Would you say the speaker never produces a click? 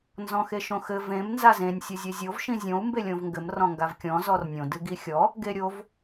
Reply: yes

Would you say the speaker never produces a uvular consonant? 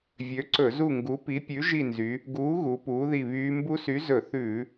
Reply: yes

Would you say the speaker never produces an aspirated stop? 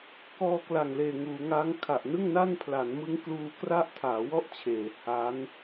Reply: no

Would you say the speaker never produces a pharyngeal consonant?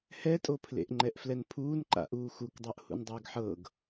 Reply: no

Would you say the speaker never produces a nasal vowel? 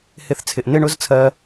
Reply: yes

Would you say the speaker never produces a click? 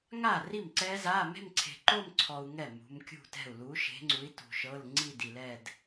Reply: no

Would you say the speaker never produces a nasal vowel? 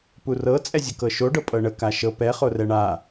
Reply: yes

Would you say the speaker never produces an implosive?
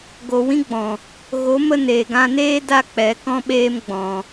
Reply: no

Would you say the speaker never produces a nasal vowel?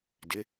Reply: yes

